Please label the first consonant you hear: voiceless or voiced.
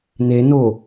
voiced